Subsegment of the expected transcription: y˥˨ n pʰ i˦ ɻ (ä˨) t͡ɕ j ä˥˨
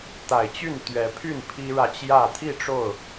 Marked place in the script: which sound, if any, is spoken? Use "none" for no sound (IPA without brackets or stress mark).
ä˨